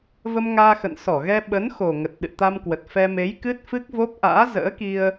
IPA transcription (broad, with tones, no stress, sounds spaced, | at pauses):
v ə˧ m ŋ aː˧ x ə̰˧˨ n s ɔ˧˩ ɣ ɛ˧ ɓ ə˨˦ n x o˨˩ ŋ ə˨˩ t̚ ɗ ɨ̰˧˨ t̪ a˧ m k w ə˨˩ t̚ f ɛ˧ m e˨˦ j k ɨ˦˥ t̚ f ɨ˦˥ k̚ v o˦˥ p̚ ʔ a̰ː˧˥ z ə̰ː˧˥ k i˧ ə̯